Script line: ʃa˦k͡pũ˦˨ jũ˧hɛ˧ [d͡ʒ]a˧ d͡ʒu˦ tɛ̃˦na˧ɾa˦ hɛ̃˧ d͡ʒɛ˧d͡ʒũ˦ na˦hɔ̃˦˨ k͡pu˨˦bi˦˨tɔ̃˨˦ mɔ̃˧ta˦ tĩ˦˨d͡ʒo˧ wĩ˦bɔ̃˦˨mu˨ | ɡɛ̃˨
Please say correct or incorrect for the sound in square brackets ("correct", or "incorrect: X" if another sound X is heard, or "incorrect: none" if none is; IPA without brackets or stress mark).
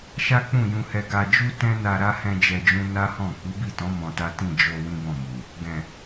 incorrect: ɡ